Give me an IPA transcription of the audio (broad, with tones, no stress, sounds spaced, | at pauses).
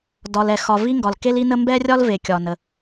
d ɒ˩ l ɛ˩ x ɒ˩ v i˥ ŋ ɡ ɒ˩ l k e˥ l i˥ n ə˥ m b ɛ˥ rʲ ɒ˥ l v e˩ kʲ ɒ˩ n ə˩